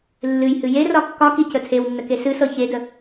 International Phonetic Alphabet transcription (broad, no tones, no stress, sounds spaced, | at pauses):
lː ɨ j h ɨ j e r ɒ kː ɒ k i c ə tʰ e w nː ə k e s ɨ s ɤ ç e d ə